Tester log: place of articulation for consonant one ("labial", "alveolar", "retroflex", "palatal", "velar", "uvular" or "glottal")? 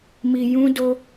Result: labial